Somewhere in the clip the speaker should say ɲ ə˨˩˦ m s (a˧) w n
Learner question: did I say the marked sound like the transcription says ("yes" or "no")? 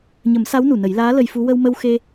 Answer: no